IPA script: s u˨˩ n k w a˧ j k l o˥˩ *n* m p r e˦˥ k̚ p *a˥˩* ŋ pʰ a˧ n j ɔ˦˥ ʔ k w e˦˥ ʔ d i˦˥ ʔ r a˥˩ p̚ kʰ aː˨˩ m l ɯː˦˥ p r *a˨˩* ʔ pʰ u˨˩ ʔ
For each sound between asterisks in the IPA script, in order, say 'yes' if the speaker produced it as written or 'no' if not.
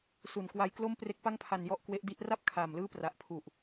no, yes, yes

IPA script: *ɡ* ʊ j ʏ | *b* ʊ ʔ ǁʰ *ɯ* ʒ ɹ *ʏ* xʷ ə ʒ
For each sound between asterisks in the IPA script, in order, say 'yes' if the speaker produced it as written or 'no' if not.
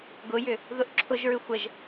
yes, no, no, yes

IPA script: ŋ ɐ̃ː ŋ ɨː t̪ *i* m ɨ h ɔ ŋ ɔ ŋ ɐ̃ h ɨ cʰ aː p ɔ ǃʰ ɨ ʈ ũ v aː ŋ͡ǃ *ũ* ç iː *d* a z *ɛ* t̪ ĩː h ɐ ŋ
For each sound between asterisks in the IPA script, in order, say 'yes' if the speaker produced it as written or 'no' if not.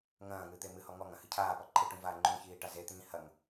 no, yes, no, no

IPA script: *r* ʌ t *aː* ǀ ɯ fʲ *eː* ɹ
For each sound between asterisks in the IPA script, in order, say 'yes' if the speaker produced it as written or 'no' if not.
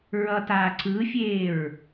no, yes, yes

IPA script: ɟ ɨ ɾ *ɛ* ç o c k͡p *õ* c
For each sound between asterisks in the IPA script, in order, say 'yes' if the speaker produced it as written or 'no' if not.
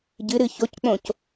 no, yes

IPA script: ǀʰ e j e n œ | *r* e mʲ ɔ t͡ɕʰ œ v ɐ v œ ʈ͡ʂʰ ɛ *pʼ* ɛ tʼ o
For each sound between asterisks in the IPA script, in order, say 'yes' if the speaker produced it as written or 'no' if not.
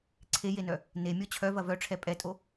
no, yes

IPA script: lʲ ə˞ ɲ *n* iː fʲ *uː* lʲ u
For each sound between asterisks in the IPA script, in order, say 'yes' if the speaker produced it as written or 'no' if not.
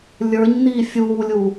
yes, yes

